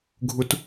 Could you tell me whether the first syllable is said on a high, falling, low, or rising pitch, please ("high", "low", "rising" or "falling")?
low